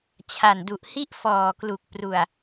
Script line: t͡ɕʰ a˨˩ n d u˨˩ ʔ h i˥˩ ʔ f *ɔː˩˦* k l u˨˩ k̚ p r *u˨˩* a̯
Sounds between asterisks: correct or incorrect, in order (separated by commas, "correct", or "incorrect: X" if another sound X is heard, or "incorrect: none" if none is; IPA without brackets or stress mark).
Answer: incorrect: ɔː˨˩, correct